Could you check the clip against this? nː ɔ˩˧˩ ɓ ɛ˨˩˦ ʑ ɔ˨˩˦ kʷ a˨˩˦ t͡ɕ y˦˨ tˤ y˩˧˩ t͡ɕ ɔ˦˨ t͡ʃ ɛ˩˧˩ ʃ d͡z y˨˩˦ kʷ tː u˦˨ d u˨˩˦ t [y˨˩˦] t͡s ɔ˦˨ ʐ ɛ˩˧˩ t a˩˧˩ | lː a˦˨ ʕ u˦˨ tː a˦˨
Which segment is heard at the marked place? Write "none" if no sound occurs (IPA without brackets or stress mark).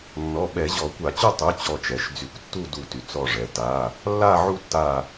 y˩˧˩